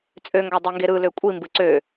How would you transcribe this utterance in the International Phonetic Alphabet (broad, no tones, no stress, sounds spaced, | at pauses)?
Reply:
t͡sʼ ø ŋ ɡ ɑ dˤ e ŋ ɡ e ɾ ɯ l ø kʷʼ i m b ɯ ǀ ø